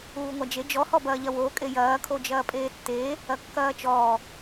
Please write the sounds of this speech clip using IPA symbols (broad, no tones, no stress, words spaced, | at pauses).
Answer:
uːŋʷad͡ʒe d͡ʒɔ hɔbɐːʎɐwoː kʼejɐː kʰod͡ʒɐːpʼeːtːeː | ɐkːɐːt͡ʃɔː